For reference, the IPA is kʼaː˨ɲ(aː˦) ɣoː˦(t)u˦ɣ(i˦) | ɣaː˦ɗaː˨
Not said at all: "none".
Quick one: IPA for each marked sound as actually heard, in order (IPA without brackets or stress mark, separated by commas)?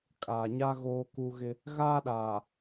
a˦, k, ɪ˦